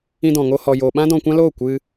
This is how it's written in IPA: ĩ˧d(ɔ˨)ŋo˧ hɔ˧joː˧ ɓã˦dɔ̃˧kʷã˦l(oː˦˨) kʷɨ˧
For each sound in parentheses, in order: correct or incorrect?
incorrect, correct

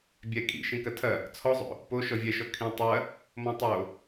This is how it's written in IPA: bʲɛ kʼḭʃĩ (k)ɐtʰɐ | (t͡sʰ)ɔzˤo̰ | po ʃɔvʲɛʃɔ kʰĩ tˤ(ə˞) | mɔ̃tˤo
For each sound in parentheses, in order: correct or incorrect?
correct, correct, incorrect

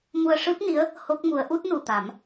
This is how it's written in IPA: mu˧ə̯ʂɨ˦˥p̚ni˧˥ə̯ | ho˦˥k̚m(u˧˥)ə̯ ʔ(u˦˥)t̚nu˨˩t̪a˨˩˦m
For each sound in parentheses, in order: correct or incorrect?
correct, correct

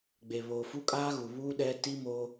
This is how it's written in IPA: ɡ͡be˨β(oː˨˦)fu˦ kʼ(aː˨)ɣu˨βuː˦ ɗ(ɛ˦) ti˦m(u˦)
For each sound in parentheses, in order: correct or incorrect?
incorrect, incorrect, correct, incorrect

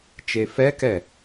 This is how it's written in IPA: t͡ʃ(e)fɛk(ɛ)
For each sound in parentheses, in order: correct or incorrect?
correct, correct

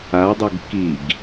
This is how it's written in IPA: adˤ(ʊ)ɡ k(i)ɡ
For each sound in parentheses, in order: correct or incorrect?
correct, correct

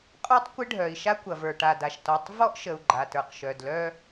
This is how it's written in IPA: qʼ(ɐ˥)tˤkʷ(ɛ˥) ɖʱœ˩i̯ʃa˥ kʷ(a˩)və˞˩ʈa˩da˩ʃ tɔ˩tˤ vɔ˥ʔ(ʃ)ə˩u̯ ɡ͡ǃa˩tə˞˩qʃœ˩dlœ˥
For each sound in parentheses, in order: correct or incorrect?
incorrect, incorrect, incorrect, correct

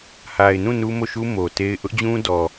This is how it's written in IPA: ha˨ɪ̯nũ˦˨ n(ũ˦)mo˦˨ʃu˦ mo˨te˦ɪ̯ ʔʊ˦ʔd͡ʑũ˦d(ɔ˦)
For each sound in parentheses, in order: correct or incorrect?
incorrect, incorrect

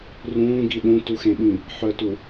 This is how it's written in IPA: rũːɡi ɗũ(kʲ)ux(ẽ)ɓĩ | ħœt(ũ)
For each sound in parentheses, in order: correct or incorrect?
incorrect, correct, incorrect

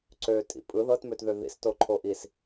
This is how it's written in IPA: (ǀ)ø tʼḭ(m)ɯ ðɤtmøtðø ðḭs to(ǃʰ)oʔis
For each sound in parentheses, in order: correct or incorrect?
correct, incorrect, correct

